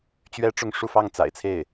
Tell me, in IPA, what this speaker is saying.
t͡ɕ ɥ ɛ˥ ʈ͡ʂ ʊ˥˧ ŋ ʂ u˥˧ f ɑ˥˩ ŋ t͡s a̰˨˩ ɪ̯ t͡sʰ e˥˩ ɪ̯

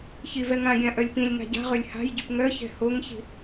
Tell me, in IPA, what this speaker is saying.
ç i v ɛ ŋ ã ɡʲ ã ʔ œ lʲ p ĩ lʲ ŋ a̤ ɟ a̤ ʁ ø lʲ h a̤ j ɟ y p ŋ œ ç ɛ̤ h o ŋ ç i̤

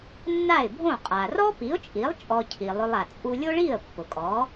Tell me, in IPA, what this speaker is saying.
nː a˥˩ ɪ̯ bʱ õ˥˩ qʼ a˩ r ɔ˥ p i˩˥ ʊ̯ t͡ʃʼ i˩˥ lˠ t͡ʃʼ ɔ˧ cʰ i˩ lˠ ʊ˧ lˠ a˩ t͡sʼ u˧ lʲ o˥ ɭ i˥˩ ə̯ pː ʊ˩ kʼ ɔ˩˥

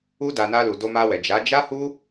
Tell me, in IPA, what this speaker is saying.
u˧ d a˨ n a˧ l u˨ d o˧ m a˧ w ɛ˨ d͡ʒ a˨˦ d͡ʒ a˦ h u˦

